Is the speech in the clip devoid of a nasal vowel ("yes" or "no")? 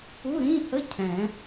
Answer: no